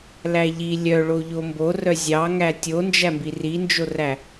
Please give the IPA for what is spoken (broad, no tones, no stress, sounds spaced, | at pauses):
l æ ʎ i lʲ œ ɭ o ʎ o m b o r œ zʲ ɑ ŋ æ tʲ o n d͡ʒ æ m b i r i n d͡ʒ o r æ